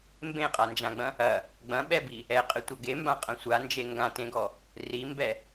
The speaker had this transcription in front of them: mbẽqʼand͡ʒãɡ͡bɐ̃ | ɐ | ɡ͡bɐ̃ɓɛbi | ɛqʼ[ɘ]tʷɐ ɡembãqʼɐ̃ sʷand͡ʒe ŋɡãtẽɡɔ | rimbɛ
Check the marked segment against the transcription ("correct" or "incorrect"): correct